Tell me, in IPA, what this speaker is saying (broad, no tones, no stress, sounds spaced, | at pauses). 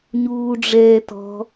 ɲ uː ɖ͡ʐ ɛː t ɔ̤